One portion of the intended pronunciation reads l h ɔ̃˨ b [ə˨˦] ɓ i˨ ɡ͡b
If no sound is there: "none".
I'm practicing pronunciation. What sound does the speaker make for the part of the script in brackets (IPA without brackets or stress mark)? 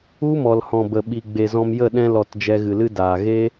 ə˨